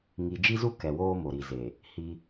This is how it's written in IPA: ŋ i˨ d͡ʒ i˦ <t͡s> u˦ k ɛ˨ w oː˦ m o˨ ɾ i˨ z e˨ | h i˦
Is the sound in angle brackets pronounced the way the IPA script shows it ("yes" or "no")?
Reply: no